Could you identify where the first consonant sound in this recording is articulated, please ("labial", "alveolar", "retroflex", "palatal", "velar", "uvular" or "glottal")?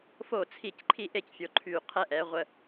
labial